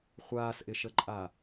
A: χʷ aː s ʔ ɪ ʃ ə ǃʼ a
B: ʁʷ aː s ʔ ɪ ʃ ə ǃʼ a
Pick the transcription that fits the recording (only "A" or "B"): A